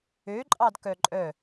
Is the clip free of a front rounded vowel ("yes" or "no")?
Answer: no